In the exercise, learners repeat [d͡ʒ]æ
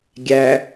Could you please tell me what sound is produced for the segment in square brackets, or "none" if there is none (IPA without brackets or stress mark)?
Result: ɡʲ